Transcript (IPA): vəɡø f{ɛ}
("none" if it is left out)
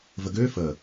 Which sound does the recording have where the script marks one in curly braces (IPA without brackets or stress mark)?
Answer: ə